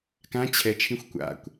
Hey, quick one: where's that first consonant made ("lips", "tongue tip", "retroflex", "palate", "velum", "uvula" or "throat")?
velum